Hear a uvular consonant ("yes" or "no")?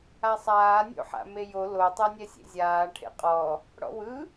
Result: yes